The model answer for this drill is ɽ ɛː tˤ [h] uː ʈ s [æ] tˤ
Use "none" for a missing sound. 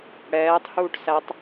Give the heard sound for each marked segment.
h, æ

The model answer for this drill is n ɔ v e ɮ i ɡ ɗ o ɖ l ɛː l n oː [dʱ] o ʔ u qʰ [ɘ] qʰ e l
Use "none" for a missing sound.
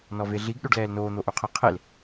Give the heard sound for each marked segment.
n̪, ɘ

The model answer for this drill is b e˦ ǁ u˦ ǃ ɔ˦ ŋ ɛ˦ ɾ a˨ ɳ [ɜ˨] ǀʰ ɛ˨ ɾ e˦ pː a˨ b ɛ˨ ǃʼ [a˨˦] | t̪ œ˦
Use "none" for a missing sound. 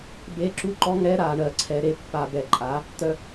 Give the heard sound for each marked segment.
ɜ˨, a˨˦

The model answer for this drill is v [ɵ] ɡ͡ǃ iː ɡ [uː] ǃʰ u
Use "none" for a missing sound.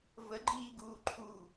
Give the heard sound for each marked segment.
ə, uː

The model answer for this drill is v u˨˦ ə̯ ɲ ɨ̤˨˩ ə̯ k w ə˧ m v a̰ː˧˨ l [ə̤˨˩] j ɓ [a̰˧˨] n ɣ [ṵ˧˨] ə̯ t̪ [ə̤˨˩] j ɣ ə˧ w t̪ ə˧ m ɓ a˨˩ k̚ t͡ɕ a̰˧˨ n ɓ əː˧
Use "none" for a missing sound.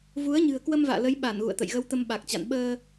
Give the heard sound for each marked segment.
ə˨˦, a˧˩, ṵ˧˨, ə̰˧˨

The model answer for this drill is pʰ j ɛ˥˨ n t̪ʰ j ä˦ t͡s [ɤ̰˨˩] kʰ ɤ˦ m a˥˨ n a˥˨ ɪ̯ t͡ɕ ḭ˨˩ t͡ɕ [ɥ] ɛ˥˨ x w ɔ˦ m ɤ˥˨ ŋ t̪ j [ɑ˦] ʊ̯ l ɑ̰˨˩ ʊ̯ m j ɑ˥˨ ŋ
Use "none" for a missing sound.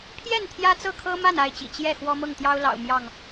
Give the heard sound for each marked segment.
ɤ˥˨, j, ɑ˦

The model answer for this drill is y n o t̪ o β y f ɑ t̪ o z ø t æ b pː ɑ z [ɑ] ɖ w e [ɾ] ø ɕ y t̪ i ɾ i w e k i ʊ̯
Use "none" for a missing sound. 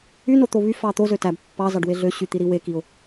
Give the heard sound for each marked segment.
ɑ, ɮ

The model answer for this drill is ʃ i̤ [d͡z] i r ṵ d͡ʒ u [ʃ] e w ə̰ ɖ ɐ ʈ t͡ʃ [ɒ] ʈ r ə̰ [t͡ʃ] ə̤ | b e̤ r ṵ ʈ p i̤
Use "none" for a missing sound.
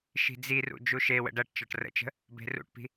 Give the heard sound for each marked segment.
d͡z, ʃ, ɒ, t͡ʃ

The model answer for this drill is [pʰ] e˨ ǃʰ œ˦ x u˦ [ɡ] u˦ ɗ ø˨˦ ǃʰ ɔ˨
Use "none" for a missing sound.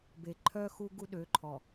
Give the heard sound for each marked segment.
b, ɡ

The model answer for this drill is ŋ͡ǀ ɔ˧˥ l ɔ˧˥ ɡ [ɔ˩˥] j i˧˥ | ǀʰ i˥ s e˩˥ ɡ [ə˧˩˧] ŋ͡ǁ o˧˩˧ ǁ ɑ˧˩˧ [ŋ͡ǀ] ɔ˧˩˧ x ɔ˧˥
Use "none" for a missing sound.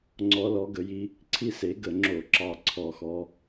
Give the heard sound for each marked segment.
ə˩˥, ə˧˩˧, ǀʰ

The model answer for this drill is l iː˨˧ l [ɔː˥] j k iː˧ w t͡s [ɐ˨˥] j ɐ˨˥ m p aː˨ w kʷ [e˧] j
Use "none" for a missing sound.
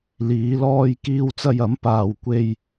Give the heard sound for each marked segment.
ɔː˧, ɐ˧, e˧

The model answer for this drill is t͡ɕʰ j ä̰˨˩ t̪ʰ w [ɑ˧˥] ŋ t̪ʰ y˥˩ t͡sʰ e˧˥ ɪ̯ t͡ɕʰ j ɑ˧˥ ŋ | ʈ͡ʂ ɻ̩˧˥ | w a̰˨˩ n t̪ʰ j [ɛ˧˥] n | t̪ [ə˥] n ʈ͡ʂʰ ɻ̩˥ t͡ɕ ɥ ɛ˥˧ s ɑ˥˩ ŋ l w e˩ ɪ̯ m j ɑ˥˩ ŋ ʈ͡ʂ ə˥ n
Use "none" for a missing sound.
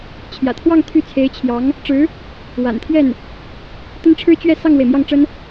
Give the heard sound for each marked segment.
ɑ˥˧, ɛ˥˩, ə˥

